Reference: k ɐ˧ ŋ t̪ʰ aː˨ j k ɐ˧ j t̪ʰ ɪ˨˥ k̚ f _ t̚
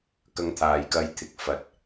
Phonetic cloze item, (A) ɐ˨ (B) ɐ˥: A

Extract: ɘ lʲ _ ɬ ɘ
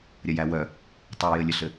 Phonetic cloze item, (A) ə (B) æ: A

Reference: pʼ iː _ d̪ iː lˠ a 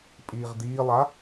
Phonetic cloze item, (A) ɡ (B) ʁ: B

